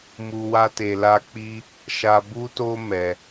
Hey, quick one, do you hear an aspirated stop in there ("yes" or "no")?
no